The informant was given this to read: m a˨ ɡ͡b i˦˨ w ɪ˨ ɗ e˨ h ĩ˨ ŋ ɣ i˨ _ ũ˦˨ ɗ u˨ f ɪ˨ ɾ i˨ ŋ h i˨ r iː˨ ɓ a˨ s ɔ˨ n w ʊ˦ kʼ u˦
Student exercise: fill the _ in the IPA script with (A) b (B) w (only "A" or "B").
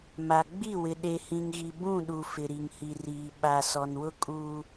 A